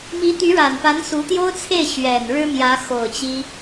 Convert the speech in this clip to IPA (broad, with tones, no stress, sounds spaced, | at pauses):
m i˧˥ t̪ y˧˥ ɻ a˨˩ n p a˧˥ n s u˧˥ t̪ j o˥ ʊ̯ t͡sʰ e˥˩ ɪ̯ ɕ ɥ ɛ˨˩ n ɻ ɻ̩˥ m j ä˧˥ x o˨˩ ʊ̯ t͡ɕ i˥